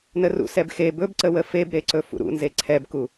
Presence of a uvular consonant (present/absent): absent